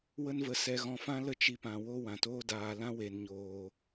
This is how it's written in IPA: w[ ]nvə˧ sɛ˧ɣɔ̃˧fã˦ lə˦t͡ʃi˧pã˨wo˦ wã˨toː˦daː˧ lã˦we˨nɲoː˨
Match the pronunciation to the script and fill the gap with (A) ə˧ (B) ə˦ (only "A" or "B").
B